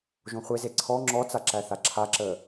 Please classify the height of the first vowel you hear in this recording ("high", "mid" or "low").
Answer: mid